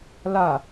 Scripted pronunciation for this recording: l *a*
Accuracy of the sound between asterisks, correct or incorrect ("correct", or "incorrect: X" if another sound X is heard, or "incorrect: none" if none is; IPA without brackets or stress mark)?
correct